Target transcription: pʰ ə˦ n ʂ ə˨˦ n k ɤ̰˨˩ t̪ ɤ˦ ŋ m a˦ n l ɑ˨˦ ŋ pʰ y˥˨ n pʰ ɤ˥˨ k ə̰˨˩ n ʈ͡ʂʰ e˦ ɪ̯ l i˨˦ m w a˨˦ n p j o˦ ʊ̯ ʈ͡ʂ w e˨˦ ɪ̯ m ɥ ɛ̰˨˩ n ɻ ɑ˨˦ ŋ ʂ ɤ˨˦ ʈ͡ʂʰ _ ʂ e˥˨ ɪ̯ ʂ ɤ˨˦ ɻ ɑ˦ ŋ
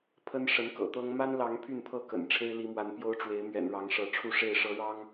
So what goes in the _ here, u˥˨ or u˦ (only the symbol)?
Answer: u˥˨